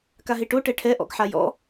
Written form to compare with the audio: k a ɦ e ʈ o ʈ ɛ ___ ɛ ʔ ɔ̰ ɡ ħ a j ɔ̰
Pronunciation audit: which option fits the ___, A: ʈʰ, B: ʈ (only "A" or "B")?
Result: A